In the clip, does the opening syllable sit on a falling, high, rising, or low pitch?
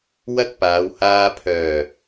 high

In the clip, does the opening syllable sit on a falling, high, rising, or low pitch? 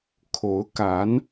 rising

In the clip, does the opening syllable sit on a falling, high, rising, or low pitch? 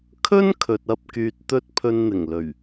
high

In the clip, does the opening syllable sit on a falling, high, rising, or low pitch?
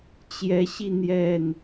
rising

